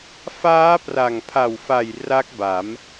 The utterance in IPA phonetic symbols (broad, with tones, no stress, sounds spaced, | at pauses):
f aː˦˥ p r a˨˩ ŋ pʰ a˨˩ w f a˨˩ j r a˦˥ k̚ b a˩˦ m